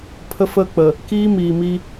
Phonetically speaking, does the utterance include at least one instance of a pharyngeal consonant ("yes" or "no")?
no